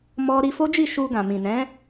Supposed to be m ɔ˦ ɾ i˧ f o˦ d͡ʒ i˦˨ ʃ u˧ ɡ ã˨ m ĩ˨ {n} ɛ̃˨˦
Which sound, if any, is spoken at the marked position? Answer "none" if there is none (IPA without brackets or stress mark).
n